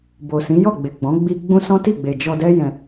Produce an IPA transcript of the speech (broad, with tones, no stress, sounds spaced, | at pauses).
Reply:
b o˨ s ĩ˨˦ j ɔ˦˨ ɡ͡b e˨ ɡ͡b ɔ̃˨˦ ɡ͡b i˧ ɡ͡b ũ˦ s ɔ̃˦ t i˦˨ ɡ͡b e˨ d͡ʒ ɔ˧ d ɛ˦ j ɛ̃˧